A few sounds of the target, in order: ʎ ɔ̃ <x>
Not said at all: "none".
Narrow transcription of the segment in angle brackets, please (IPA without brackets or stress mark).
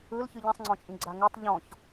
ç